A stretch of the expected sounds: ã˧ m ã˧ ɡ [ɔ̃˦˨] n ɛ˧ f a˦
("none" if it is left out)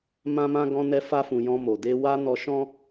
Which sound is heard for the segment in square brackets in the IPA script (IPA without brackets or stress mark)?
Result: ɔ̃˧